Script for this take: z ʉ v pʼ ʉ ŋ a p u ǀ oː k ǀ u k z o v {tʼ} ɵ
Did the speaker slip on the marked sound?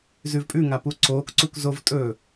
no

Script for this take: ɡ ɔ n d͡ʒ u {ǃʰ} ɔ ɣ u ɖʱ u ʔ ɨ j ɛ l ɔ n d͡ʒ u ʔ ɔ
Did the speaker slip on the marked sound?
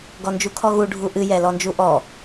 yes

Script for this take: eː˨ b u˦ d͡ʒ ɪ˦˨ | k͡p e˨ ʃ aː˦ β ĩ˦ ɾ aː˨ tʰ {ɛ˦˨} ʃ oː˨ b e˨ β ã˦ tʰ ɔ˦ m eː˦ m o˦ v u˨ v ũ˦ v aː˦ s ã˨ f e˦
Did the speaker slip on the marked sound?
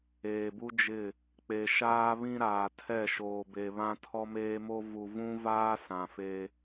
no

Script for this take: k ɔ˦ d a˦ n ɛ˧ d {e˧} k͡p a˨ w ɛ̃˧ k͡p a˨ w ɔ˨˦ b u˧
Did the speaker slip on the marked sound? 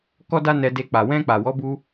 no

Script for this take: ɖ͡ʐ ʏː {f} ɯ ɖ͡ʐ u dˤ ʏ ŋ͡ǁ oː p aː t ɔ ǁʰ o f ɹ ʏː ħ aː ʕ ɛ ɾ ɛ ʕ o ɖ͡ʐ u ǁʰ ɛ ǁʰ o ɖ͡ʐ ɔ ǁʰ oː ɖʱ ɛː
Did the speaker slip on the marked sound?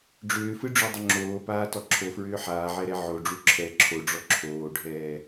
no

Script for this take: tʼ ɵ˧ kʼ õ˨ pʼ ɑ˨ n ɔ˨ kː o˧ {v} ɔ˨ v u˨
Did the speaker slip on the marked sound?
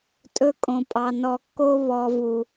yes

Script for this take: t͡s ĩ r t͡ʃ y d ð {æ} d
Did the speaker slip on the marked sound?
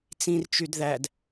no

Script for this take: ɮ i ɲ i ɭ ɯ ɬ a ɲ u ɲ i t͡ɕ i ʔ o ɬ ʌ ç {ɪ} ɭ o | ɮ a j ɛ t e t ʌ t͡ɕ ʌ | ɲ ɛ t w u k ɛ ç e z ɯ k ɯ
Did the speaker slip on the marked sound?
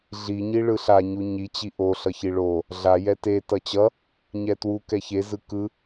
yes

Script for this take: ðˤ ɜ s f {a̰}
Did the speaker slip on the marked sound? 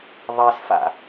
no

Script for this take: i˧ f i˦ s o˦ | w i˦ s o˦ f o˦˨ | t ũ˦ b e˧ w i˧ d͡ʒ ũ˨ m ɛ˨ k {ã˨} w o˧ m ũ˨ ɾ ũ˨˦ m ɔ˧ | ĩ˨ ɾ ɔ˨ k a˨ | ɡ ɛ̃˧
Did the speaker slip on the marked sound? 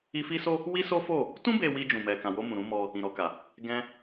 no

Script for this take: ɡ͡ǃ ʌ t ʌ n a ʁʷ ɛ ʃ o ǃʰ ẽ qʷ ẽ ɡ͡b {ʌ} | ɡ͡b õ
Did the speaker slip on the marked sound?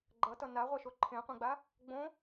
yes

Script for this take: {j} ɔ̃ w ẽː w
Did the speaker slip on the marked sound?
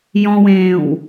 no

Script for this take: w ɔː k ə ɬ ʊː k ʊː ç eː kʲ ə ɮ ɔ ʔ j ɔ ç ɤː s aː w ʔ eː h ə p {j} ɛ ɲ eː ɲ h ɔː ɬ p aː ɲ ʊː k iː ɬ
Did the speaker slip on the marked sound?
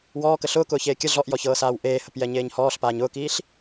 no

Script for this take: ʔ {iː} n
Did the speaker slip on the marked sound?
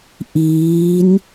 no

